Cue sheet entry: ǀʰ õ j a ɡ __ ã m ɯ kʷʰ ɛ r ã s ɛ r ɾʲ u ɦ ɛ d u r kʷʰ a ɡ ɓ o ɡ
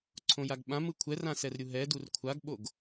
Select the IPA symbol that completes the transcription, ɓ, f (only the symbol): ɓ